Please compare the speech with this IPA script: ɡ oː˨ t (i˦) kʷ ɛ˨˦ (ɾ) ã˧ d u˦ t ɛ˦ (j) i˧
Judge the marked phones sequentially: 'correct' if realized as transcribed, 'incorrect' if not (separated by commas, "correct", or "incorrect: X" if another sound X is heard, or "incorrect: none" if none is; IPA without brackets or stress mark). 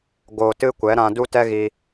incorrect: ɨ˦, correct, incorrect: ɣ